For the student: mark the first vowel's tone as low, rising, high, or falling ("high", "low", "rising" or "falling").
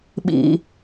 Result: high